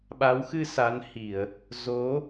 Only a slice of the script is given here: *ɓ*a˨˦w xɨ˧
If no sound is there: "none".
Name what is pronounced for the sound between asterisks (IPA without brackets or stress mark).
ɓ